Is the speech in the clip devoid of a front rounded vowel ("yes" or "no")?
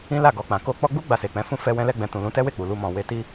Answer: yes